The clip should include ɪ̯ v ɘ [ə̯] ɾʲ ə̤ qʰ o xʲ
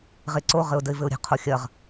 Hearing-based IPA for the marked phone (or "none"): ʊ̯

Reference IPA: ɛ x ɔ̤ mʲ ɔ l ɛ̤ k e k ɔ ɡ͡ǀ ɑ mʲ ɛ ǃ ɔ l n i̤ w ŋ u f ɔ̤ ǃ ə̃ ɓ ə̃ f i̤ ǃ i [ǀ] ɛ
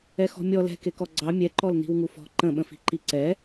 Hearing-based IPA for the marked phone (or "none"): ǀ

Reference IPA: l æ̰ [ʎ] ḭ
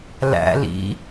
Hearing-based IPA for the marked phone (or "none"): l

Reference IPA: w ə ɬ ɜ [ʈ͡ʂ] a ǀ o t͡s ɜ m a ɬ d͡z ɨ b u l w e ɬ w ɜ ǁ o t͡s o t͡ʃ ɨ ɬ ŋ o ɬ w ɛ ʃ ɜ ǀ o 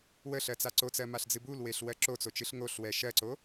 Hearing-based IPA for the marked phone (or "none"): t͡s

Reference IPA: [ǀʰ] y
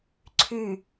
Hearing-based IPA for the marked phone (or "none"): ǀʰ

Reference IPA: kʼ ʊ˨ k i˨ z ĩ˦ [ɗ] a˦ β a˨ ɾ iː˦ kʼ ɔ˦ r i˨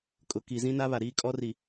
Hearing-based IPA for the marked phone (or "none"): n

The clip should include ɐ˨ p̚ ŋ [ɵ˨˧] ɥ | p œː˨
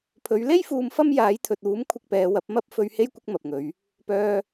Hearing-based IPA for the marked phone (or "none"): ɵ˨˧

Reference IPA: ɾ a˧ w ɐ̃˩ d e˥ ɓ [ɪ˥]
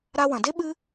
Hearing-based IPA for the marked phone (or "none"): ɨ˥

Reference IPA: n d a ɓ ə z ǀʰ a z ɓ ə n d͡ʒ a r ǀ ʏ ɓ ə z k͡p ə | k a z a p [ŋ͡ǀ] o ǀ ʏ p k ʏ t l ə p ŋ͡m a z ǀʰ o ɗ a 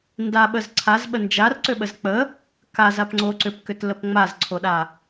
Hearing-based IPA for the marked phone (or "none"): ŋ͡ǀ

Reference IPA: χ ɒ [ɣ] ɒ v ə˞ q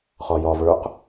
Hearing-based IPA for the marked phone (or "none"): j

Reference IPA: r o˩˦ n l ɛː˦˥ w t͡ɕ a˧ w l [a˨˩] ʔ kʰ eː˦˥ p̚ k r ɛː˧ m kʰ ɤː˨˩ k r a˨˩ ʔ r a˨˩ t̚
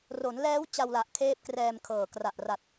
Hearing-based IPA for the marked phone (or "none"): a˨˩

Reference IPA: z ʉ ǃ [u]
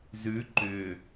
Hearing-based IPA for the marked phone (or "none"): ʏ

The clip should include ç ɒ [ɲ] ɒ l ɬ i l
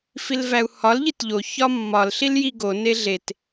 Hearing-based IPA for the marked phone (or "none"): mː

